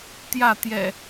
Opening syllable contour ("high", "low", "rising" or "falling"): falling